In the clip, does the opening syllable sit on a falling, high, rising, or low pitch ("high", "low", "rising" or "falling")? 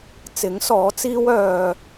rising